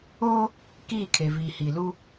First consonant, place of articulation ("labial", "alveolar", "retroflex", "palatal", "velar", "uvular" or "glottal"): velar